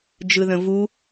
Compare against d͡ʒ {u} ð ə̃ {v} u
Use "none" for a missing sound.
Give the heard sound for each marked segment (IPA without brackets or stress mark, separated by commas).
ɯ, v